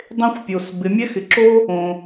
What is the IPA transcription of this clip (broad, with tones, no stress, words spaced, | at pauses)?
dˤẽ˥xʷpʲo˩s bɪ˩˧mʲɛ˥ xɪ˩ǁo˥ | õ˩